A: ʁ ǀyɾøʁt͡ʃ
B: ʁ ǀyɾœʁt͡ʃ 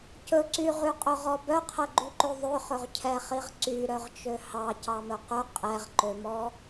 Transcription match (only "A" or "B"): B